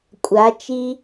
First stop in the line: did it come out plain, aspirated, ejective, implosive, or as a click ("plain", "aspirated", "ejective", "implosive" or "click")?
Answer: ejective